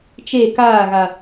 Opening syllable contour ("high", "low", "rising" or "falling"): falling